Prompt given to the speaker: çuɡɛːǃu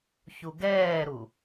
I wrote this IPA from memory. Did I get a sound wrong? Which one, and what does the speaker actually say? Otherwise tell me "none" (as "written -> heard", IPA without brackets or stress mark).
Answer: ǃ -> ɾ